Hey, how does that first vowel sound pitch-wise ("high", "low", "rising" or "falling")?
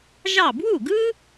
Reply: falling